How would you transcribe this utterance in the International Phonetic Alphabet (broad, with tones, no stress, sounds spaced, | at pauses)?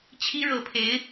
t͡ɕʰ i˥ ɻ ɤ˧˥ pʰ e˧˥ ɪ̯